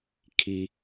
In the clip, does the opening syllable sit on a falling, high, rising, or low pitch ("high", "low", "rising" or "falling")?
low